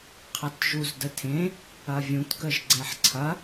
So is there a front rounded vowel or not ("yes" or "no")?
no